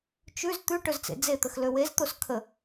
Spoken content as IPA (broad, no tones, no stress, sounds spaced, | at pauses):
t͡ʃ ʉ z t̪ ʉ ʈ ɵ z t͡s ḛ d͡z e t̪ ə x l ø w e z t̪ o s kʰ ə